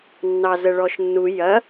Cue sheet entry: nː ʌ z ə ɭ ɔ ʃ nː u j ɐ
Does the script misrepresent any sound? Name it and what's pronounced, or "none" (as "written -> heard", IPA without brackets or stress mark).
ʌ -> ɑ